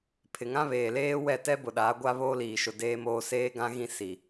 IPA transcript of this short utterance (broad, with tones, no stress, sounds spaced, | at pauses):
pʰ ɪ˨ ŋ ã˦ β eː˨ l eː˦ w ɛ˦˨ t ɛ˦ b ʊ˨ ɗ aː˨˦ ɡʷ a˦ β oː˦ l iː˨ ʃ ʊ˨ d eː˦ m oː˦ s eː˦ ɡ ã˦ ɣ ĩ˦ s i˨